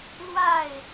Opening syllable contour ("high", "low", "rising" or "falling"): falling